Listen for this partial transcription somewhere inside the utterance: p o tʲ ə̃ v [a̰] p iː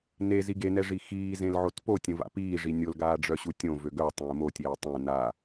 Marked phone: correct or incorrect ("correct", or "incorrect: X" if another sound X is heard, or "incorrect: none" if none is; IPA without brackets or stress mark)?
correct